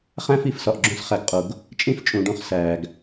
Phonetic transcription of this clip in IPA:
χæ̃˦ fi˦˨fsɒ˨ʔɡ͡ǁõ˦s χæ˨ɡqʼo˨ɡ | t͡ʃʼĩ˦ft͡ʃʼũ˨ɖũ˦χ sæː˨ɡ

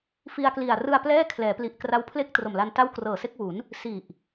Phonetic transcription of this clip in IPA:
fi˧a̯kli˨˩a̯ rɯ˧a̯plɛː˥˩ kʰlɛː˩˦pli˨˩ʔkra˦˥wpʰle˥˩k̚ tro˨˩mla˧nta˥˩w krɤː˨˩se˥˩k̚wu˩˦n | si˨˩ʔ

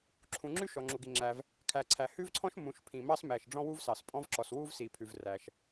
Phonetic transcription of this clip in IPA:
ǁʰũ˩ŋ͡ǁʉ˥ ʃɔ˩ŋ͡ǁu˩ɡi˩ŋ͡ǁæ˩v | kʰæ˩ǀʰæ˩ hʉ˥vǀʰɔ̃˥ʃ mũ˩ʃ pʰĩ˩mɑ˥s mæ˩ʃ ɖ͡ʐɔ̃˥wu˥vsɑ˩s pʼɔ̃˥vǁɔ˩s wu˥vsi˩ pʰʉ˩vræ˩ʃ

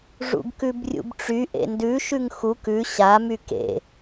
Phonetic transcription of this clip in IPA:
ʐṵɡkʉbrʲṵbʈ͡ʂy ʔḛndʉ ʃʉŋxuk ʉ ɕa mykḛ

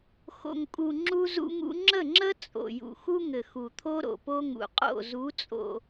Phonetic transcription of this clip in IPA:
xo̰˨ŋkʼu˨ ŋ͡ǁu˦zṵ˦ŋṵ˦ ŋ͡ǁə˦˨ŋ͡ǁə˦ t͡sʼo̰˨ jṵ˨xu˦ŋɘ˨ xu˨t̪ʰo˦ɾo̰˨po˦ ŋṵ˨qʼo̰˦˨ zu˨˦t͡sʼo̰˨

